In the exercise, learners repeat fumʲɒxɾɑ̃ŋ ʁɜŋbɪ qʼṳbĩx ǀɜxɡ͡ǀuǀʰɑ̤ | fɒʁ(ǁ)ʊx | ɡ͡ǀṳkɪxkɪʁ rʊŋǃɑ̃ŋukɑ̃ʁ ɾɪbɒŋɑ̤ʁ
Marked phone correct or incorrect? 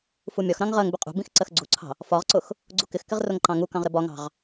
incorrect